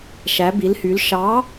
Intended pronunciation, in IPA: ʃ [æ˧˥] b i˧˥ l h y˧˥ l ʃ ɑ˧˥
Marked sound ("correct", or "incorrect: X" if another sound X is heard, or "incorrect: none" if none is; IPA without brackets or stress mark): correct